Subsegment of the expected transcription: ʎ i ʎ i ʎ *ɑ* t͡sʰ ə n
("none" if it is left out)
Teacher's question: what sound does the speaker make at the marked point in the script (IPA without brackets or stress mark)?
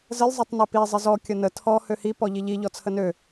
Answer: ɔ